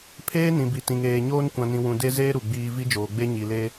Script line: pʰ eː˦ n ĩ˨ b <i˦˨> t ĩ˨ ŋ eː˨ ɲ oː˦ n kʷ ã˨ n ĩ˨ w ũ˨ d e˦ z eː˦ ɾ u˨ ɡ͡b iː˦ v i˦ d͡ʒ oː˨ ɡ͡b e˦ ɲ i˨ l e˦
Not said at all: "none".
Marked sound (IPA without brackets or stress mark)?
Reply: i˨